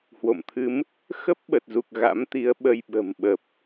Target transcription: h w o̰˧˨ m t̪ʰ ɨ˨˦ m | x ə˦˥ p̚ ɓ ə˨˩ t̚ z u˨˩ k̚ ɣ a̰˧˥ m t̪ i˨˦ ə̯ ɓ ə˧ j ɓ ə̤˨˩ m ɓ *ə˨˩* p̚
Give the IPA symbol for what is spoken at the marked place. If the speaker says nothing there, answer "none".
ə˨˩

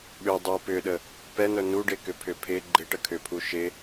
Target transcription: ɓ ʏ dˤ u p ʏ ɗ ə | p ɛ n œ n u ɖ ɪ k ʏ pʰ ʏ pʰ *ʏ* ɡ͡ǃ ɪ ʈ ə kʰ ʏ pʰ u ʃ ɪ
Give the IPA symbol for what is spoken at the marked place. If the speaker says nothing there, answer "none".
ɪ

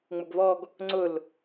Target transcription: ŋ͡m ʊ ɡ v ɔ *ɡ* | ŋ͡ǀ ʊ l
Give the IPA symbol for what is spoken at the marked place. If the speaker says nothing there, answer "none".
ɡ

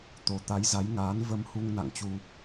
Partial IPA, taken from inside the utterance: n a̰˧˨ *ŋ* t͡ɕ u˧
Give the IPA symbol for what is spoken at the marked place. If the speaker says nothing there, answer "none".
ŋ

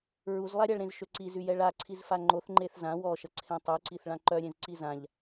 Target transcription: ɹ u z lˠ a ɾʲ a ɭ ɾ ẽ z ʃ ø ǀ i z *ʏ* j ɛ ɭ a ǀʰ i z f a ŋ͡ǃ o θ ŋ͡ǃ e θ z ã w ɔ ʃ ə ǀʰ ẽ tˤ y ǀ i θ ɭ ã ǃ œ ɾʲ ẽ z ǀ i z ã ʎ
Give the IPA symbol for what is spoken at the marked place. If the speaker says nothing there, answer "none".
y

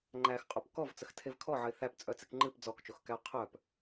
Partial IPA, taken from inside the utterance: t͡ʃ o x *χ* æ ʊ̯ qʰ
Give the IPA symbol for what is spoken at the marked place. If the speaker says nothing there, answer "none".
k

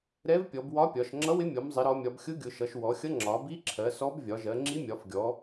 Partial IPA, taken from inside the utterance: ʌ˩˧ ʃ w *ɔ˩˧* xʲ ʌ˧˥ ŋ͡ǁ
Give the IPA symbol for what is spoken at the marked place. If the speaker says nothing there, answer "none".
ɔ˩˧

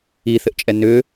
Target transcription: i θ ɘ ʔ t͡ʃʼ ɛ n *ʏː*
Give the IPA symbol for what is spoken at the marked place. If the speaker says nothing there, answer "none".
ʏː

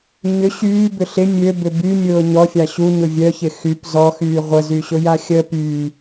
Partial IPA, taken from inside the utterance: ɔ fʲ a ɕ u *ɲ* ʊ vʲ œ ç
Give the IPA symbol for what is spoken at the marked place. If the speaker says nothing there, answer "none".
ɲ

